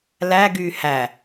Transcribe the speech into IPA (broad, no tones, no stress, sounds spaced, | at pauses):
l æ ɡ yː h æ